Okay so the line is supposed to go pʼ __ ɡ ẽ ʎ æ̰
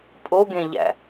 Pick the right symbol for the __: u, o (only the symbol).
o